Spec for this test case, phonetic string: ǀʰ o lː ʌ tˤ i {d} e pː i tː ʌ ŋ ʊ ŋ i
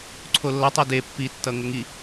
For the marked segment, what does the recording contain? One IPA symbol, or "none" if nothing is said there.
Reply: d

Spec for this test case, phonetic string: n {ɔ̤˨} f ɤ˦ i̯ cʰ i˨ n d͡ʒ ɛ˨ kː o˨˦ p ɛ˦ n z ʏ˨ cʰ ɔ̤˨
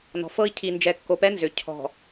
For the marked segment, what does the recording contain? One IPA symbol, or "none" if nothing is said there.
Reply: ɔ̤˨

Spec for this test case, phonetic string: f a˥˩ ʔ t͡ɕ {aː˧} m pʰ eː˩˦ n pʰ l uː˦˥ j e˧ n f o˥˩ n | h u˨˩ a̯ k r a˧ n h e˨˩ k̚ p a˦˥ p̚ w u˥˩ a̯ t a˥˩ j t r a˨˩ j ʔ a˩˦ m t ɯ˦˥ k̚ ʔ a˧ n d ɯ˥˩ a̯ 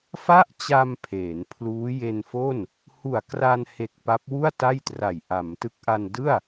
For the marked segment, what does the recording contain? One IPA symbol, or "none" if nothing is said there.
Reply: a˧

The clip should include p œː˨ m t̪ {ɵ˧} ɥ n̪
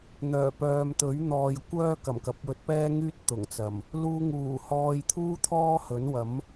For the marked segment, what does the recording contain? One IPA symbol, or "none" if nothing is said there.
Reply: ɵ˨˥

